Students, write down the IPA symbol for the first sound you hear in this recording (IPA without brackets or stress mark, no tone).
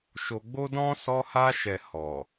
ʃ